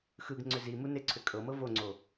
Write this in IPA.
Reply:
x ɯ ɡ ŋ͡ǀ ʏ z i m u n e ǀʰ ʏ kʼ ɤ m ɤ v o ŋ͡ǀ o

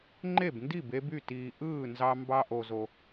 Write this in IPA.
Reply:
ŋ͡ǃ e˥˨ b n d i˥˨ b e˦ b y˥˨ t iː˨ ʔ ɯː˥˨ n z ɑ˦ m b ɑ˦ ʔ o˨ z o˨

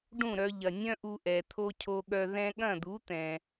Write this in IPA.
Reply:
ɖ ũ˥˩ ɾ œ˧ ʎ ɐ˩ nʲ œ̃˥ ʔ u˧ ʔ ɛ˩ t̪ʰ o˧ cʰ o˧ ɠ œ˧ ð ɛ̃˧ ɠ ɐ̃˥˩ d̪ u˩˥ t̪ ɛ̃˩

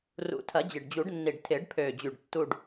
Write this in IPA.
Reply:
r ṵ˨˩˦ tʰ ɐ˨˩˦ d͡ʑ ɪ˨˩ ɖ d͡ʑ u˨˩˦ ɖ nː i˨˩ ɖ tʰ ɪː˨˩˦ ɖ pʰ øː˨˩ d͡ʑ y˨˩ ɖ tː u˨˩ ɖ

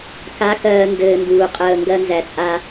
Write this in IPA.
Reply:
k a˨˦ k ɜː˨ n d ɘː˨ n d uː˨ qʼ əː˦˨ ŋ ɡ ɜ˦ n z æ˨ t͡sʼ a˦

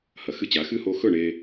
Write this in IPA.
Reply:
h ɐ˨ x ɨ˦ t͡ɕ a˨˦ x ɨ˦ h o˧ x ɵ˦˨ ɳ e˧

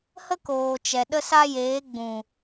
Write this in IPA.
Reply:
h ə˦ k oː˨ t͡ʃ ɛ˨ ɗ ə˦ s a˦ j eː˨˦ ɡ͡b ũ˨

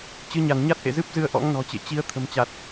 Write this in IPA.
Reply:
t͡ɕ ɨ˨˦ ɲ a˧˩ n ɲ a˦˥ t̚ ʔ ḛ˧˨ z ɨ˦˥ p̚ z ɨ˧ ə̯ ʔ ɔ̰˧˥ ŋ n ɔ̤˨˩ t͡ɕ ḛ˧˨ t͡ɕ i˨˦ ə̯ t̪ʰ ə̤˨˩ m t͡ɕ a˨˩ t̚

